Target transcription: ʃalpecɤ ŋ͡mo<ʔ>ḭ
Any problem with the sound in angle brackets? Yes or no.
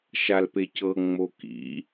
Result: yes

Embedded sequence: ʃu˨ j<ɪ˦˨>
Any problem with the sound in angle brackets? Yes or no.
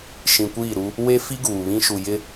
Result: yes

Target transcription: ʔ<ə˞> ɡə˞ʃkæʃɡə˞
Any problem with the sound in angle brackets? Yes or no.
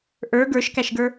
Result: no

